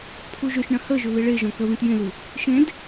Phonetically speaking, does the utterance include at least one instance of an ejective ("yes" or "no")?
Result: no